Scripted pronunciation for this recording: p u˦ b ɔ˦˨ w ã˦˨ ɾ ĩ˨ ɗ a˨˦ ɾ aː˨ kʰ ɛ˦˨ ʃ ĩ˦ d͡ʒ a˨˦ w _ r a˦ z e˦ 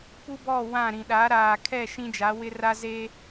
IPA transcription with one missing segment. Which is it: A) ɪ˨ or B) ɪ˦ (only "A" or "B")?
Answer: B